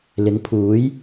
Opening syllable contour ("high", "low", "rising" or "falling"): rising